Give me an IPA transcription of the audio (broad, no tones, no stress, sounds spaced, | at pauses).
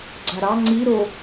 ɡ͡ǀ a ɾ ɑ ŋ͡ǀ i ɾ o